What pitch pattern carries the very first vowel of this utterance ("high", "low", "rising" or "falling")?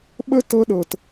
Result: high